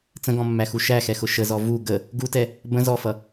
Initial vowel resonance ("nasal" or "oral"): nasal